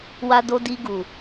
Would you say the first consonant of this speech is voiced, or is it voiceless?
voiced